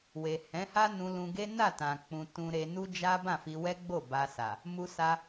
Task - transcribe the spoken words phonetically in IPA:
w e˨ h ɛ̃˨˦ h a˦ n ũ˧ l ũ˧ ɡ e˦ n a˦˨ t ã˨ k͡p ũ˧ t ũ˧ ɾ e˧ n u˦ d͡ʒ a˦ b ã˦˨ f i˧ w ɛ˦ ɡ͡b o˦˨ b a˧ s a˨ | m u˧ s a˧

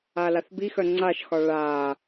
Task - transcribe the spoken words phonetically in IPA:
a l a θ b i x œ ŋ͡ǀ a ʃ x ɒ ɭ a

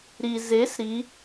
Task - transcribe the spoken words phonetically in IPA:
ɾ i z e s ɾ i

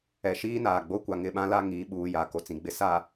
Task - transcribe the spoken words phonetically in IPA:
ɛ˨ ʃ iː˦ n aː˨ ɡ͡b o˦ kʷ a˨ ŋ ɪ˦˨ ɓ ã˦ l a˦ ŋ iː˨˦ ɓ uː˨ j a˨˦ k o˨ t͡s ĩ˨ ɡ͡b ɪ˦ s a˨

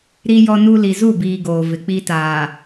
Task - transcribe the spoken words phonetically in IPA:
ɾ i˦ j ɔ˦ n u˦ l i˨ z u˦˨ b iː˨ ɡ oː˨ v ɪ˨ k͡p i˦ t aː˨

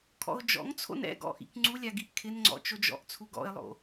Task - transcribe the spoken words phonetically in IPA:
kʰ ɔ̰ ʊ̯ d͡ʒ ɔ̰ ŋ t͡sʰ o̰ n ɛ̰ ɡ ɔ̰ ʔ ḭ k ŋ͡ǀ u lʲ a ɡ i ʔ kʰ ɪ n ŋ͡ǀ ɔ̰ t͡ʃ o d͡ʒ ɔ̰ ʔ t͡sʰ u ɡ ɔ̰ ɪ̯ lˠ o̰

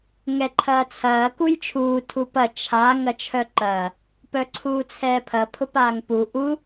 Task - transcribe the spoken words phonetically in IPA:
ŋ ɛ ǃʰ ɐː t͡sʰ ɐː k u j t͡ʃʰ uː tʰ u p ɐ t͡ʃʰ a ŋ ɐ t͡ʃʰ œ ǃ ɐː | p œ ǀʰ uː t͡sʰ ɛː pʰ ɐ pʰ ʊ p aː ŋ p u ʔ u

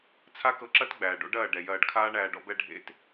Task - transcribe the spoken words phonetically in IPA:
t͡sʰ a˦ k ɤ˧ ǁ ɐ˦ t ɡ͡b æː˨ ɖ o̰˦ ɖ ɐː˦˨ ɖ ɛ˨ j ɐː˧ ɖ kʰ aː˦ ɳ æː˧ ɖ ɔ̰˧ b ɛ˧ ɖʱ ḛ˧ t

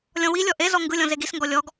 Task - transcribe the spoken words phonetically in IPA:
lʲ ɔ̃ w i lʲ ɔ ʔ e z ɔ ŋ ɡ ɯ lʲ ɔ̃ z e ɡ i s ŋ ɡ ɔ lʲ ɔ ɡ

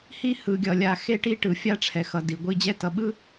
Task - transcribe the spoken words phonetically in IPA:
h i˦ h ɯ˨ ɡʲ ʌ˨ lʲ a˨ x e˦ ʈ i˦ ʈ ɯ˨ fʲ a˦ ʈ͡ʂʰ ɛ˨ x ʌ˨ d i˨ ɡʷ i˦ d͡ʑ ɛ˦ t ʌ˨ ɓ ɯ˦

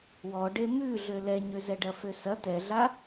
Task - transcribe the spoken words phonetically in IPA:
w ɔ ɖ e m ʉ ɮ ø l ɛ ɲ ø z ɛ ɖ ɐ f ø s ɐ t ɛ ɮ a

